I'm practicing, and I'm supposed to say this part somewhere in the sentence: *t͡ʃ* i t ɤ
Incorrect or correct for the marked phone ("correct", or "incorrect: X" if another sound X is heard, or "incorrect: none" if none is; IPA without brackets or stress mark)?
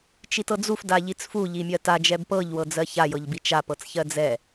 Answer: correct